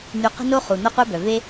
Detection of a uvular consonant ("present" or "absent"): present